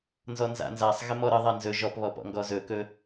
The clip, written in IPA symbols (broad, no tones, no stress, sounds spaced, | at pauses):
n z ɔ n z a̰ n z a sˤ ɣ ɪ m ɔ ɾ ə ðˤ a n z ɵ ʒ ɔ p β ɔ p ɔ̰ ŋ ɡ ɔ z ɵ k ɵ